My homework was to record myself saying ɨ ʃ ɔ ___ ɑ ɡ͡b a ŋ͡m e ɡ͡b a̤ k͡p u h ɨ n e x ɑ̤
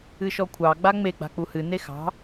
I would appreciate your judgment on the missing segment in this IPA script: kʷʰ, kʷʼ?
kʷʰ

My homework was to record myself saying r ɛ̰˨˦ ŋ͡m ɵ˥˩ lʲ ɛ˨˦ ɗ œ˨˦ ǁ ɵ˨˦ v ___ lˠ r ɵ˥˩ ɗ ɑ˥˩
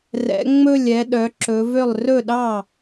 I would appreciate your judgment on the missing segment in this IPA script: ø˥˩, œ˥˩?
ø˥˩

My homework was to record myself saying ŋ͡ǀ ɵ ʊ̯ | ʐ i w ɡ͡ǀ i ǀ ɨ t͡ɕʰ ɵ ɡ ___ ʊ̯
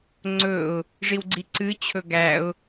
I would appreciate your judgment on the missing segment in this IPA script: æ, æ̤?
æ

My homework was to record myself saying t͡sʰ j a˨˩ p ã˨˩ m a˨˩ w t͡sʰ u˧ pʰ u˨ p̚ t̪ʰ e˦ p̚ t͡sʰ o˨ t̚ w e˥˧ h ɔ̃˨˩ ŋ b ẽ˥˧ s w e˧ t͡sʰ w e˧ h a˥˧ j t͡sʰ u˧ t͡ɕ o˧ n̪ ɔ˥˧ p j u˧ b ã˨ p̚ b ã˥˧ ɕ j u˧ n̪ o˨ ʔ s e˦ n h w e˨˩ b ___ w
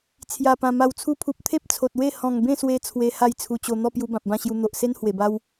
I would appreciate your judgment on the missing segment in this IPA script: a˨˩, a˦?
a˦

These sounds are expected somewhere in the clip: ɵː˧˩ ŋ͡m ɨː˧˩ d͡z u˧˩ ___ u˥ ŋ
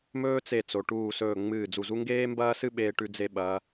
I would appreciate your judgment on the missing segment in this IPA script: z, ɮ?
z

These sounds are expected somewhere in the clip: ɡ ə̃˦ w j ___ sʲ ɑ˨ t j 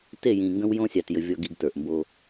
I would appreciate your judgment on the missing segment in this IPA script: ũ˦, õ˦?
õ˦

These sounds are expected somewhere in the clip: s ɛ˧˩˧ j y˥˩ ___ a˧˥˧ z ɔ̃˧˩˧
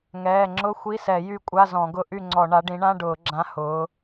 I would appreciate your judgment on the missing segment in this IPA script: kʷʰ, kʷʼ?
kʷʼ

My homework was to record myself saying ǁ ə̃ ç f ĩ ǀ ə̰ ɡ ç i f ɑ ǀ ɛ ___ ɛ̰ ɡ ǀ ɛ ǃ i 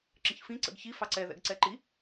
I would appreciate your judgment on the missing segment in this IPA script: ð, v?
ð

